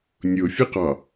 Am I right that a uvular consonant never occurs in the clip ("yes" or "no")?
no